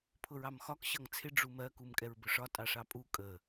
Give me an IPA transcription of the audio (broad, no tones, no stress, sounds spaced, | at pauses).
pʰ ʊ ɹ ɑ m x ɒ k ɕ ʌ ŋ t͡sʰ ɪ ɖ͡ʐ u m ɜ k u m kʼ ɛ ɹ b ʊ ʂ ɒ tʼ ɑ ʂ ɑ pʼ u kʼ ə